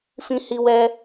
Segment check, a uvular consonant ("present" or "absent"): absent